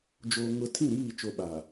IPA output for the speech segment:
d͡ʒ oː˨ ŋ ʊ˨ tʰ ĩ˦˨ ɾ iː˦˨ t͡ʃ o˨ ɓ a˨

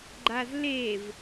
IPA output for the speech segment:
ɡ͡ǃ a z l e v

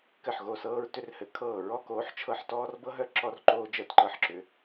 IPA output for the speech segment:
k ɘ˥˨ ħ ɣ o˥˨ s ɤː˥ ɹ t ʏ˥ r h ɘ˧˥ kʰ ɤː˥˨ ɹ ɔ˥ k oː˧˥ ħ t͡ʃʰ ɤ˥˨ ħ t ɔː˥ r b ɤ˥ ɦ œ˥ ǁ ɔ˥ r ǃ oː˥ d͡ʒ əː˥˨ t ǃ ɤ˥˨ ħ ǁ ʏ˧˥

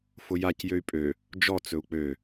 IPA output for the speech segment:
f ʊ j a c j ø y̯ pʼ ø | d͡ʒ ɔ t͡s ɵ u̯ k͡p ø

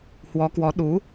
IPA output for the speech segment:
h w ɔ˨˦ k w ɔ˨˦ ɗ u˨˦

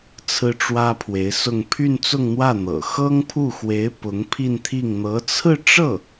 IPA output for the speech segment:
t͡sʰ ɹ̩˥ ʈ͡ʂ w ä˥ pʰ w e˧˥ ɪ̯ s ʊ˥˧ ŋ pʰ y˥˧ n t͡s ʊ˥˧ ŋ n̪ w ä˥˩ n̪ ɤ̰˨˩ x ɤ˥ ŋ pʰ u˥˩ x w e˧˥ ɪ̯ p ʊ˧˥ ŋ pʰ i˥˧ n t̪ʰ i˥˩ ŋ n̪ ɤ˧˥ t͡sʰ ɹ̩˥˧ ʈ͡ʂ ɤ˥˩

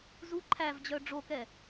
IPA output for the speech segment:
z u ǃʰ æ v d͡ʑ œ ɖ͡ʐ o k ɛ

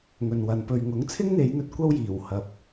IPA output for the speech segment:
ŋ ɵ˨ n w ɐ˨˧ n p ɵ˧ ɥ ŋ ʊ˨˥ ŋ t͡sʰ ɪ˥ ŋ n̪ e˨˧ j n̪ ɵ˧ t̚ kʷ ɐ˥ w j iː˨˩ w h ɐ˧ p̚

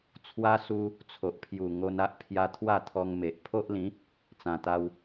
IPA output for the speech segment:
t͡sʰ w a˧ s u˧ | t͡sʰ o˨ ʔ pʰ j u˨˩ ŋ o˧ n a˦ ʔ pʰ j a˧ t̪ʰ w a˥˧ t̪ʰ ɔ˧ ŋ m e˨ ʔ pʰ o˦ ʔ l ĩ˨˦ | t͡s ã˨˩ t̪ a˧ w

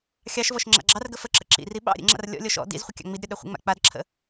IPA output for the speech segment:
xʲ ɑ ʃ v ɔ ʃ ŋ͡ǁ a̰ ɡ͡ǁ ɑ r ɡ ə f ə ǁ ə̰ ǁ ḭ r i ɓ ɑ̰ ɾʲ ə̰ ŋ͡ǁ a̰ r lʲ ɔ̰ lʲ ɔ ʃ ɔ̰ d ḭ z χʷ ə kʲ ɑ̰ ŋ͡m i d ɾʲ ɔ ɗ œ χʷ ə̰ ŋ͡m a̰ k͡p a d ǁʰ ə̰

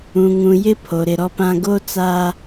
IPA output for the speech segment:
ũ˨ ŋ ũ˨ j ɪ˦ pʰ o˨ ɾ ɪ˨ ɾ ɔ˦ p ã˦ ɡ o˦ t͡s aː˦

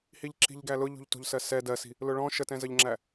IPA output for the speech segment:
h i ʎ ǁ i̤ ʎ ɡ æ l ʊ ʎ ṳ ʎ t ṳ ʎ s ɜ s ɛ d ɜ s i̤ | l ʊ ɭ ɔ̃ ʃ ə t ɛ̃ z ə ʎ ŋ͡ǁ æ

